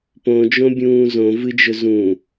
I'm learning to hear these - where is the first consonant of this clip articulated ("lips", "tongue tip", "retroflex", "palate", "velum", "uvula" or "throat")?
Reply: lips